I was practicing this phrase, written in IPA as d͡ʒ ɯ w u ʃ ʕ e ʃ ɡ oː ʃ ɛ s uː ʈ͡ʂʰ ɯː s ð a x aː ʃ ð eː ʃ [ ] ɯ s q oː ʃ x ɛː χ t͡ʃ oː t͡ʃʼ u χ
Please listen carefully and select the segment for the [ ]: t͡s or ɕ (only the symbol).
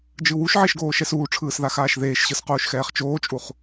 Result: ɕ